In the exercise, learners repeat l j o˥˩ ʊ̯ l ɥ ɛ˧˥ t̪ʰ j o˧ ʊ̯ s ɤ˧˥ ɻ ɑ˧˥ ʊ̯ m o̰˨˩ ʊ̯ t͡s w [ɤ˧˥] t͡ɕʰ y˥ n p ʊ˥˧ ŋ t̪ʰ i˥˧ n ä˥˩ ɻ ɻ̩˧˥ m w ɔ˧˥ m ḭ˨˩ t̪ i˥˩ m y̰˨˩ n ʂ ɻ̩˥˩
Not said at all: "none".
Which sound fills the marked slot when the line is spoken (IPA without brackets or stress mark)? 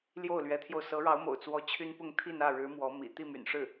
ɔ˧˥